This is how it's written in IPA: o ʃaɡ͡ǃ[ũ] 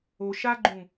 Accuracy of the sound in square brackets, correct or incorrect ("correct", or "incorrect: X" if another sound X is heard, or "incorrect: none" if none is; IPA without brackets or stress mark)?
correct